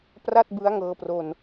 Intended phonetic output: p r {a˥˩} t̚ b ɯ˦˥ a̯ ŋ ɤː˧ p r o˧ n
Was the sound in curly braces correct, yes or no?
yes